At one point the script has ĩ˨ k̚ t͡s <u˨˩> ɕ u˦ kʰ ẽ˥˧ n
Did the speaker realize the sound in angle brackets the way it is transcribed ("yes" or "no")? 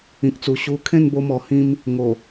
yes